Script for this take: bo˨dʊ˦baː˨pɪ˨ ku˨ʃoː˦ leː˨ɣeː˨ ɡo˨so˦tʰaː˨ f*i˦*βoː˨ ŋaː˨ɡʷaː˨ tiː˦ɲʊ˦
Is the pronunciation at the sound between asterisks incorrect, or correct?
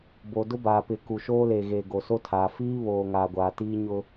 incorrect